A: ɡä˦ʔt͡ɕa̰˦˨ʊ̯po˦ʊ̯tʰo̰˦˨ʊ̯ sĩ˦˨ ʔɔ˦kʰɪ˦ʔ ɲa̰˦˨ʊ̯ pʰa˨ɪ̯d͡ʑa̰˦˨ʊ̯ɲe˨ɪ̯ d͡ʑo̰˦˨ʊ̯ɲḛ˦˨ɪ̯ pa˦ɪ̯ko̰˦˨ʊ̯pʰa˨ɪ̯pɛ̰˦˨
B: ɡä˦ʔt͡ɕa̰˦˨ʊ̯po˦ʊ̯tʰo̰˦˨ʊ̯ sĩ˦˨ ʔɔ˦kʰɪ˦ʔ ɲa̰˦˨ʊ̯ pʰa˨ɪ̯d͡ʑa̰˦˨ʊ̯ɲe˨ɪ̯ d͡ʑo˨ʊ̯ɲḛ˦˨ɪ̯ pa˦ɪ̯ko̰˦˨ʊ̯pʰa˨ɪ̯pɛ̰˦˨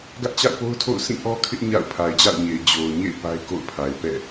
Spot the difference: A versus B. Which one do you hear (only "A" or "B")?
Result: B